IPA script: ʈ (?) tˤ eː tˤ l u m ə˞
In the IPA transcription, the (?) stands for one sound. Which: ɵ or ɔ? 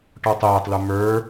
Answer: ɔ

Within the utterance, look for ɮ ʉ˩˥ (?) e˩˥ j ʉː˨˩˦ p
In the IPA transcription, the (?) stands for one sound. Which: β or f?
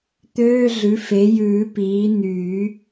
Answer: f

